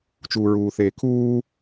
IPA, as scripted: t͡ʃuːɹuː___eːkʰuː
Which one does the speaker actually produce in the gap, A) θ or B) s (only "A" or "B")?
A